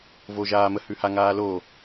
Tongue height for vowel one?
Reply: mid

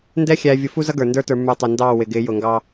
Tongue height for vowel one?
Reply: mid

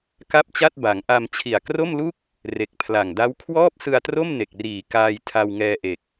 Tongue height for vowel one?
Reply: low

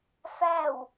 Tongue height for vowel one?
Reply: low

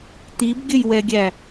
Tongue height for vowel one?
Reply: high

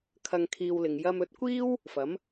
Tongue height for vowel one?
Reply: low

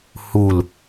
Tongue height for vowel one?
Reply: high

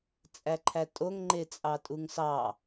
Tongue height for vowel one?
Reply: low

